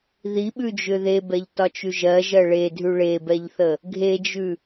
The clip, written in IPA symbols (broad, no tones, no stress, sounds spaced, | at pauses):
ð i ɓ ʉ d͡ʒ ʏ ð e b ɛ ʎ t ɒ t͡ʃ ʉ ʒ ɜ ʒ ɜ ɭ e dʱ ʉ ɭ e b ɛ ʎ θ ə | ɡʱ e d͡ʒ ʉ